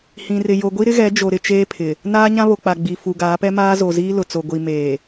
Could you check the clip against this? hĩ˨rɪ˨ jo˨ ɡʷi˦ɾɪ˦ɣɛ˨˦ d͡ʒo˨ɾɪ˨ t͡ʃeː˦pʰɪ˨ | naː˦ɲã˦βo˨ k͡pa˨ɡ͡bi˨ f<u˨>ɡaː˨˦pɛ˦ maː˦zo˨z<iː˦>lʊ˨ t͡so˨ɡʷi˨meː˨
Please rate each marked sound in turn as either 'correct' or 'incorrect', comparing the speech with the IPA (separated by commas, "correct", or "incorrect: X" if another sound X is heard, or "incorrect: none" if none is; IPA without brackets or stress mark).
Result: correct, correct